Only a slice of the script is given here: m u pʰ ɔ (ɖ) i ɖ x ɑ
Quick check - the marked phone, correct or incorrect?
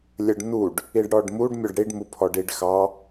correct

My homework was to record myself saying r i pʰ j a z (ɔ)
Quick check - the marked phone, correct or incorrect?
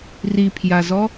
correct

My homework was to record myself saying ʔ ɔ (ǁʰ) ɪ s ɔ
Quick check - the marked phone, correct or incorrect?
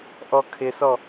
incorrect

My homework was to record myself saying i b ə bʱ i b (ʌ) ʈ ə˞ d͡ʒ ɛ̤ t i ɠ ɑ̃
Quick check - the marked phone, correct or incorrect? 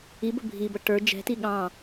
correct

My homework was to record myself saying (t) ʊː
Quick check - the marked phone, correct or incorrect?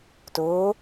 correct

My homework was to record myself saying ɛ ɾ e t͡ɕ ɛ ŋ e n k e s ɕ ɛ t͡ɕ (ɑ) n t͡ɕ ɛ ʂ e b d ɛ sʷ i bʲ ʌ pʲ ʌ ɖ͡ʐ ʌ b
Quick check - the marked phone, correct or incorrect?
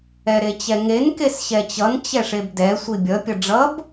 incorrect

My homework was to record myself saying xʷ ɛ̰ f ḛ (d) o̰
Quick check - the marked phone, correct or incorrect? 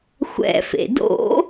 correct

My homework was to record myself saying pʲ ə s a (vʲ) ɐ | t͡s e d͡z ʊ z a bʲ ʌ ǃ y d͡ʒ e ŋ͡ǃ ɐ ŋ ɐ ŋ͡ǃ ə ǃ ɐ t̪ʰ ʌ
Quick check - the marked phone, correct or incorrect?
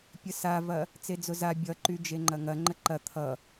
incorrect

